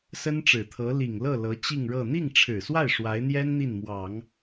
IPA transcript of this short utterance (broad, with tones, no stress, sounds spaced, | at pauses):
s ə˥ n ʈ͡ʂ ɻ̩˨˩ t̪ʰ ɤ˧˥ l i˨˩ ŋ l ɤ˥˩ l ɤ˧˥ t͡ɕ i˥˧ ŋ ɻ ɤ˥˧ n̪ i˥˩ ŋ ʈ͡ʂʰ ɻ̩˨˩ s w a˥˩ ɪ̯ ʂ w a˧˥ ɪ̯ n̪ j ɛ˥ n n̪ i˥˩ n m w ɑ˨˩˦ ŋ